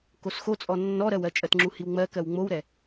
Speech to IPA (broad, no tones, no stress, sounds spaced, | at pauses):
k o s x o t͡sʼ ɔ nː ɔ ɾ ɜ w ɜ t͡ʃʼ ɜ t ŋ͡ǁ u h i w ŋ͡m ɜ k ɜ w ŋ͡m o w ɾ ɛ